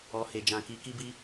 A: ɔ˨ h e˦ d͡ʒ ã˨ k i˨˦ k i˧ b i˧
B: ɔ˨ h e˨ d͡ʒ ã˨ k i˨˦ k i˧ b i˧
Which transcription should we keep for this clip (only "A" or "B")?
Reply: B